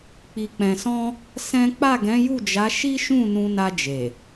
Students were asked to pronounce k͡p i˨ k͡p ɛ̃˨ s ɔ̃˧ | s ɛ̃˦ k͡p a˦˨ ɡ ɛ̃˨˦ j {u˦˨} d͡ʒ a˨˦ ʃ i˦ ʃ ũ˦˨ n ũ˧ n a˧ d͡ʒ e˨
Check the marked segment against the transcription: correct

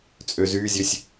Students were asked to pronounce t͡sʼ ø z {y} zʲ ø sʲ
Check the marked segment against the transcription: correct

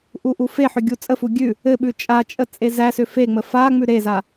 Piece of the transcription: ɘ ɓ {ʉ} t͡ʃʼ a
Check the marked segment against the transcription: correct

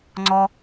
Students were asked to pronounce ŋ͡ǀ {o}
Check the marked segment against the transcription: incorrect: ɔ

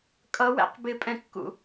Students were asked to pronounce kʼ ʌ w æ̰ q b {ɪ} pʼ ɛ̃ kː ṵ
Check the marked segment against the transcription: correct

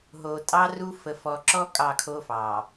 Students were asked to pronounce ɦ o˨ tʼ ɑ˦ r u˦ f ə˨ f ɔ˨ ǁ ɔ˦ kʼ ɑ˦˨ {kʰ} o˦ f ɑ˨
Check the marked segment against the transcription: correct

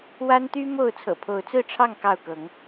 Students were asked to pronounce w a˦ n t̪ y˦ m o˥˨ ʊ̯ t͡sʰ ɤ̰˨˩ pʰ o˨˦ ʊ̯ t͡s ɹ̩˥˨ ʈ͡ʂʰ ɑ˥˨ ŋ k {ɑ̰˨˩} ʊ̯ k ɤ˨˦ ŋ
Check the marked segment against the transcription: incorrect: ɑ˥˨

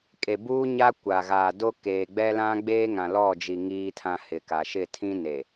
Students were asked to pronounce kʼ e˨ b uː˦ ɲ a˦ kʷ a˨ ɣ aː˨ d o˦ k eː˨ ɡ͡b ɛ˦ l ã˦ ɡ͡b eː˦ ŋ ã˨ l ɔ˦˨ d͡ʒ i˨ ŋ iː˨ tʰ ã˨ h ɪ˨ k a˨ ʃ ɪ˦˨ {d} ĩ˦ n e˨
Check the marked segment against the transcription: incorrect: tʰ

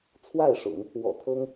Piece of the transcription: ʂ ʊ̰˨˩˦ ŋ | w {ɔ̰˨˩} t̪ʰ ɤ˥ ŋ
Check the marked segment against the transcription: correct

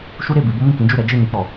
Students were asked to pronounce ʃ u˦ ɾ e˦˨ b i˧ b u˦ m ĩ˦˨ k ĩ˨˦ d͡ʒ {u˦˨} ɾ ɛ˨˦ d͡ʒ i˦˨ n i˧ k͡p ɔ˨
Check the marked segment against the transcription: correct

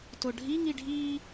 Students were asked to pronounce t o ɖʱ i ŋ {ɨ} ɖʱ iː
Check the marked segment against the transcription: incorrect: i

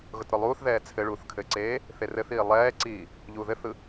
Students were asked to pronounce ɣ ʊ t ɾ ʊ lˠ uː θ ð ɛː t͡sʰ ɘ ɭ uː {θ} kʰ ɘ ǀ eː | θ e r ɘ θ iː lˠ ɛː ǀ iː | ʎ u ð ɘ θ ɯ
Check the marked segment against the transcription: correct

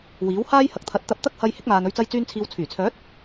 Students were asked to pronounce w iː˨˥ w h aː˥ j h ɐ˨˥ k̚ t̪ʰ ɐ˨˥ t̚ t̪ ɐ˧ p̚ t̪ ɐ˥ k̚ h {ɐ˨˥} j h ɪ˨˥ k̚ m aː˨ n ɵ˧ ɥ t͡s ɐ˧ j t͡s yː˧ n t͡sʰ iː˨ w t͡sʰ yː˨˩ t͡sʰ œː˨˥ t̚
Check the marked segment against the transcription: incorrect: ɐ˧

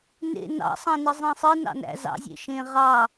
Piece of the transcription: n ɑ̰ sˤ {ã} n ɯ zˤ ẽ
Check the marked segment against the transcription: incorrect: ɑ̃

